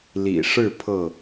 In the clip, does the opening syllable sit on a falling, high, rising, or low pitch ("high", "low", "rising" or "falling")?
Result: low